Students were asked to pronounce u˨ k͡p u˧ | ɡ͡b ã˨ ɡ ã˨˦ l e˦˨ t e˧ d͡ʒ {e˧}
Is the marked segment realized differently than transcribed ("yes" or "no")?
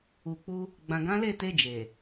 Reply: yes